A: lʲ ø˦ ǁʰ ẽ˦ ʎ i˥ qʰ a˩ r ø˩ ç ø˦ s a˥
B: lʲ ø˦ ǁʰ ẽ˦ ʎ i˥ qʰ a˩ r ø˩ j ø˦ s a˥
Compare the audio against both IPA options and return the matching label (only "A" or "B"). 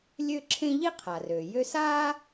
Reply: B